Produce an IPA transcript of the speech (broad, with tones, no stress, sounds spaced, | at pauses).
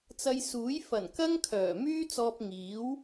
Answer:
t͡s ɐ˧ j s uː˨˥ j f ɐ˨˩ n k ɐ˥ ŋ kʰ œː˨˩ m yː˥ t͡s ɔː˧ p̚ ŋ iː˨˥ w